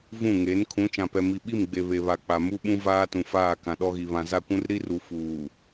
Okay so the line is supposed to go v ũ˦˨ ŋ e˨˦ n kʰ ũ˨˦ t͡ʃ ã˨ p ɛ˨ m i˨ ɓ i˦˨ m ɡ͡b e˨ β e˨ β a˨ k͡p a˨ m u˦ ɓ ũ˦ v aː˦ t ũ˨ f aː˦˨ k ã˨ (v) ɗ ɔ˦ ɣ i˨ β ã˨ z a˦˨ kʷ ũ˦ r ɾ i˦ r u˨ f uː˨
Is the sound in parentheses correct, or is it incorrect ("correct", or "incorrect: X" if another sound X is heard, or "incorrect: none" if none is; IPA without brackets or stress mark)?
incorrect: none